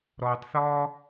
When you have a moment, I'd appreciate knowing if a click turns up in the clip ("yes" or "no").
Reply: no